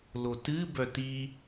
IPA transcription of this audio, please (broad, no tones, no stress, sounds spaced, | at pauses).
l o t ɨ b œ t i